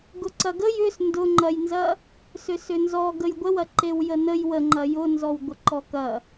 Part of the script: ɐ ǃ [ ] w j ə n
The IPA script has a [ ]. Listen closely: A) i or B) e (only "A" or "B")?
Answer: B